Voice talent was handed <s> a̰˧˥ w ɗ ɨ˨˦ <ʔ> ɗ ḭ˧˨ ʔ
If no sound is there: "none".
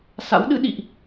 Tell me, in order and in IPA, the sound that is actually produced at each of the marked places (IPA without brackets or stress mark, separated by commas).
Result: s, none